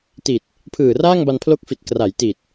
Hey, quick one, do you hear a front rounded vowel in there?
no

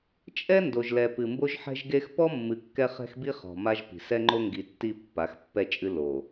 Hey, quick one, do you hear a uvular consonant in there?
yes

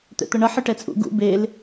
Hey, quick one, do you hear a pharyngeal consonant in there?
yes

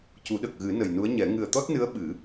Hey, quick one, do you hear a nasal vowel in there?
no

